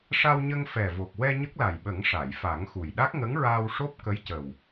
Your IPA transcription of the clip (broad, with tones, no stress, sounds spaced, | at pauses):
ʂ a˧ w ɲ ə˧ ŋ f ɛ˨˩ v o˨˩ k̚ w ɛ˧ ɲ ə˦˥ k̚ l a˨˩ j ɓ ə˨˩˦ ŋ ʂ a˨˩˨ j f a˨˩˦ ŋ x u˨˩ j ɗ a˦˥ k̚ ŋ ə˧˥ ŋ ɹ aː˧ w ʂ o˦˥ p̚ k ə˧˥ j c ə˨˩ w